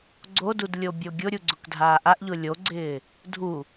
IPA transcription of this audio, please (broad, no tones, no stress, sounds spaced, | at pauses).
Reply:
ɡ͡ǀ o d u d lʲ o bʲ o ɡʲ ʊ ɾʲ u ɡ͡ǀ ʊ k dʱ aː ʔ a ʔ ʎ ʊ lʲ o ɡ͡ǀ ɪː | dʱ u